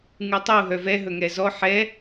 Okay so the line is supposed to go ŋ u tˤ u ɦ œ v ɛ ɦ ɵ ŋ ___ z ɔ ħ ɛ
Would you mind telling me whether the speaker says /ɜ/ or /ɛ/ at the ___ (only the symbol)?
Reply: ɛ